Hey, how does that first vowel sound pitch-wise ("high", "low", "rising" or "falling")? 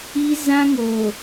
high